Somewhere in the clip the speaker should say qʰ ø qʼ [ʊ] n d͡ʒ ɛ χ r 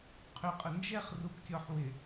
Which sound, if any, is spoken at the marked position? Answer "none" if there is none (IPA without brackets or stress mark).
ə